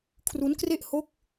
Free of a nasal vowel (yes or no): yes